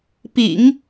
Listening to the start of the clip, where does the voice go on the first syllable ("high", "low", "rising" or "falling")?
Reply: low